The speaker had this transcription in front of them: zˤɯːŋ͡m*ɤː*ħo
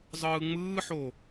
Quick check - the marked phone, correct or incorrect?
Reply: incorrect